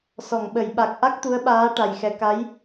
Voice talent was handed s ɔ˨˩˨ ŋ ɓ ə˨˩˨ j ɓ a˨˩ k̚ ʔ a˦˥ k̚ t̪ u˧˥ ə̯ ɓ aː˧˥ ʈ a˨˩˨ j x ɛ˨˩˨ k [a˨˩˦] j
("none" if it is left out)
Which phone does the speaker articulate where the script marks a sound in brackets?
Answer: a˧˥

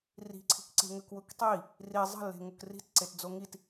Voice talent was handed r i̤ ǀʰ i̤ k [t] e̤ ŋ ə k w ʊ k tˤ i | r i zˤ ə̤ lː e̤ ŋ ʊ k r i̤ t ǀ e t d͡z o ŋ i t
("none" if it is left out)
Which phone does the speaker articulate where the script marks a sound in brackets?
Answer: ǀ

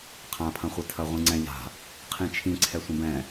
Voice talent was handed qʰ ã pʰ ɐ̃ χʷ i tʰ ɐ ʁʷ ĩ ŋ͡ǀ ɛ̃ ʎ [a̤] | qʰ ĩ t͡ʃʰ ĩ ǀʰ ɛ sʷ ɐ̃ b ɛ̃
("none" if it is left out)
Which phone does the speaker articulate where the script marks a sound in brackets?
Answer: a̤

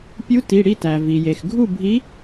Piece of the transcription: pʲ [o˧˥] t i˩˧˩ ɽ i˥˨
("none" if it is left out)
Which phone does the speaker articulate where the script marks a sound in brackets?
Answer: u˧˥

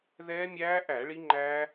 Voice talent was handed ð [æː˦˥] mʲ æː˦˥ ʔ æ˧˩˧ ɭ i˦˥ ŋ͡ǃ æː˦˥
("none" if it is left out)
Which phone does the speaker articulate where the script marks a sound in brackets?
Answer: ɛː˦˥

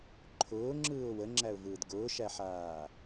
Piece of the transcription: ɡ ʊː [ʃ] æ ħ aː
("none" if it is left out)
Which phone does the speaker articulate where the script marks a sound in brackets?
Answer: ʃ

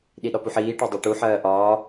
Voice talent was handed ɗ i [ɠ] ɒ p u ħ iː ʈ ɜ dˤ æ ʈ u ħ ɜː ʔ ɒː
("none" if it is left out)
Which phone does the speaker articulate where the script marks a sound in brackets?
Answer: ɗ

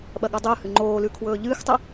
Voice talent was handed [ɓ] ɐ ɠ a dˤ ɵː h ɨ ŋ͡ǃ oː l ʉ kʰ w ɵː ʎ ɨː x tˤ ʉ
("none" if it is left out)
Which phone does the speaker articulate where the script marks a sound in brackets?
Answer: ɓ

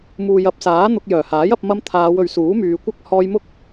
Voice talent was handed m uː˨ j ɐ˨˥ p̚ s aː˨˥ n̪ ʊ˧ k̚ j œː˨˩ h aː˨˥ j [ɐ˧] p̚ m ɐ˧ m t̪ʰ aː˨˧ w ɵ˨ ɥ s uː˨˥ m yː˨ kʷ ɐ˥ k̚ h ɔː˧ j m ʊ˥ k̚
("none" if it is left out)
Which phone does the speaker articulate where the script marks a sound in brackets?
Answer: ɐ˧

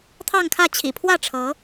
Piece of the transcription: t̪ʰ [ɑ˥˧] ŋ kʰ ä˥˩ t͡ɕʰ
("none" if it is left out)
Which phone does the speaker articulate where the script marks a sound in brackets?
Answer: ɑ˥˧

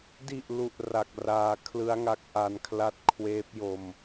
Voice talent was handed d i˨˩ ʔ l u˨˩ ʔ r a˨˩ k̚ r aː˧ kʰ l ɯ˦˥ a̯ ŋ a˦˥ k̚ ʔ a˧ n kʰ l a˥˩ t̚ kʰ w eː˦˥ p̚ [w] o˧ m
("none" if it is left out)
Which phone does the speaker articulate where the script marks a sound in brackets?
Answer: j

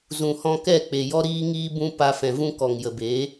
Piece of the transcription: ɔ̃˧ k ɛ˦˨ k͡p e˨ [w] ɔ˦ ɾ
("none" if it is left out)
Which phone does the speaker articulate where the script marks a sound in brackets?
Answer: j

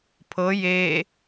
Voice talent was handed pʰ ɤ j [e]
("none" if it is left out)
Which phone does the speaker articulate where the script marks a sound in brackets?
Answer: e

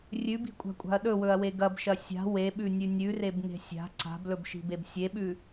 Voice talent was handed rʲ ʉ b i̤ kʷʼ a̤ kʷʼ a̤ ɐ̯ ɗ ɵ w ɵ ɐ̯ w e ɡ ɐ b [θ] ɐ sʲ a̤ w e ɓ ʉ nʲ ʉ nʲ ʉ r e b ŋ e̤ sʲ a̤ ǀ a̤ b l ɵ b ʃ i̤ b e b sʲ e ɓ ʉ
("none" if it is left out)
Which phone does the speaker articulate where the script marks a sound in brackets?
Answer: ʃ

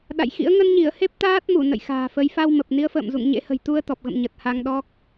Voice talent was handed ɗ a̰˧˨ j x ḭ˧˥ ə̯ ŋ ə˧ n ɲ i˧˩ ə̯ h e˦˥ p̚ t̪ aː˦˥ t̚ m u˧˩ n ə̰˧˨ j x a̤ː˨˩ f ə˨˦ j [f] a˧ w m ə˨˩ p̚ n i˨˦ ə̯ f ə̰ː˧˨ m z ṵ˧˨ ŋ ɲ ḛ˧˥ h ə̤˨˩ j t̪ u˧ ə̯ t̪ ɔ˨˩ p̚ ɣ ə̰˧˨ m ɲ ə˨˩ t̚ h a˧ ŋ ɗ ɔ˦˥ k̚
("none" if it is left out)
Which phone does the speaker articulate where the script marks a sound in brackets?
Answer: f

